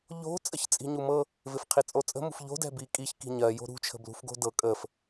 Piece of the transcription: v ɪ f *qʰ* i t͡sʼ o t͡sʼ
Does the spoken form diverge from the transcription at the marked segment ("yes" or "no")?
no